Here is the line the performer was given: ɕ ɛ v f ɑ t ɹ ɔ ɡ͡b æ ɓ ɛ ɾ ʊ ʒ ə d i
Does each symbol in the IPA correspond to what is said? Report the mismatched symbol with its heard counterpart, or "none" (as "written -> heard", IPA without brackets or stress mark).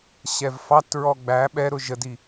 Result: none